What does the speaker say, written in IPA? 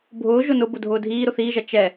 bʱ ʊː ʒ ʊ n ʊ b ʊ dʱ ʊː dʱ iː ɾ ʊ θ iː ʒ ɐ t͡ʃ ɛ

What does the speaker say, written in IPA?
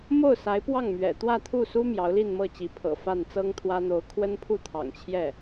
m o˥˩ ʊ̯ s a˧˥ ɪ̯ p w ɑ˥˩ ŋ m ɥ ɛ̰˨˩ t̪ w ä˥˧ t̪ʰ u˥˩ s u˥ m j ɑ˧˥ ʊ̯ l i˥˧ n m ɤ˥˩ t͡ɕ i˧˥ pʰ ɤ̰˨˩ f a˥˩ n t͡s ɤ˥ ŋ t̪ʰ w ä˥ n̪ o˧˥ ʊ̯ kʰ w ə˥ n pʰ u˥˩ t̪ʰ ɑ̰˨˩ ŋ t͡ɕʰ j ɛ˥˩

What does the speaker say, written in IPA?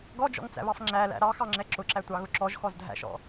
ɡ ɔ d͡ʒ ɔ̰ ŋ t͡s æ̰ β ɑ f ŋ͡ǁ æ l æ̰ ɾ ɑ x ɑ ŋ͡ǁ ɛ ǁ ʊ ǁ æ tʷ ɑ ɣ ʊ ǁ ɔ ʒ x ɔ z dʱ æ̰ ʃ ɔ̰

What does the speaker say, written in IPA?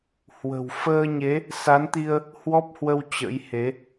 h w ə̤˨˩ w f əː˧ ɲ e˨˦ | s a˨˦ n t̪ i˧ ə̯ | h w ɔ˦˥ p̚ h w ə˧ w t͡ɕ ə̰˧˥ j h e˨˦

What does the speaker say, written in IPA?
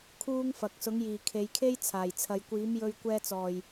kʰ uː˥ ŋ f ɐ˨ k̚ s ʊ˨˥ ŋ j iː˨˩ kʰ e˨˧ j kʰ e˥ j t͡sʰ aː˨˩ j t͡sʰ ɐ˨ j kʷ iː˨˥ m j ɵ˧ ɥ kʷ ɛː˧ t͡s ɔː˨˩ j

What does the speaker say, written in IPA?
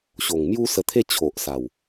ɕ o˨˩ ŋ m j u˦ s ə˧ t̪ʰ e˦ t͡ɕʰ o˨ ʔ s a˨˩ w

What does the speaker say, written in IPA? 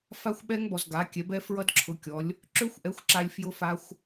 f a˦˥ xʷ ɓ ɛ˦˥ ŋ b ɔ˨ z ɡ a˩˥ kʲ ɛ˩˥ b ɛ˦˥ f ɹ ʌ˦˥ d ǁʰ ʊ˩˥ kʲ ɔ˩˥ lʲ | ǁ ø˦˥ xʷ ʔ ɛ˩˥ xʷ ǁ a˨ lʲ f j ʊ˦˥ f a˦˥ xʷ

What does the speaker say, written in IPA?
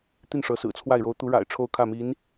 t̪ i˥˩ n ʂ ɤ˧˥ s ɹ̩˨˩ t͡sʰ w a˥˩ ɪ̯ ɻ o˧˥ ʊ̯ t̪ u˧˥ ɻ a̰˨˩ ɪ̯ ʈ͡ʂʰ o˥˧ ʊ̯ kʰ ä˥˩ m i˧˥ n

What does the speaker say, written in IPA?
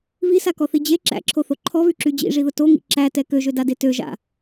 β i s a k ɔ θ i d͡ʑ e ǁ æ̰ ǁʰ o θ o ǃʰ ɔ β y ǁ y d͡ʑ ḭ ʐ i ð ʊ t o ŋ ḭ ǁ æ t ɛ k ø ʒ ø d a d e t ø ʒ a̰

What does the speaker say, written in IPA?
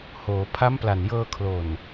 h oː˩˦ pʰ a˦˥ m p l a˨˩ n j ɤː˧ kʰ l o˨˩ n

